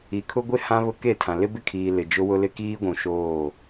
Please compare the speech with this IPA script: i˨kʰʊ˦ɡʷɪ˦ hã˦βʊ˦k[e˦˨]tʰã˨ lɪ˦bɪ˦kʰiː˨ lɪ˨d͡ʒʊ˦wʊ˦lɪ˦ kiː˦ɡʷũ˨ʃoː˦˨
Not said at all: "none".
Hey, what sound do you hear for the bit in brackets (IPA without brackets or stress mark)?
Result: e˦˨